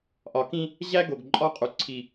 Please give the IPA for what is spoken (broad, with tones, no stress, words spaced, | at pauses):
ʔɒ˨kĩ˦ | ʑæ˦ɡo˨ɡ ǃʼɒ˦qʼu˨ ǀʰi˦